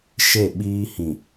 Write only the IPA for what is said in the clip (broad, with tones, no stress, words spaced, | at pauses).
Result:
ʃe˦˨ɓiː˦ hĩ˨